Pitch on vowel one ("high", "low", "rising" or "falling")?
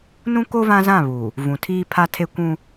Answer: high